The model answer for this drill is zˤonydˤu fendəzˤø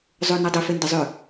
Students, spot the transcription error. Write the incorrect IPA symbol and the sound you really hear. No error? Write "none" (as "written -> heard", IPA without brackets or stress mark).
none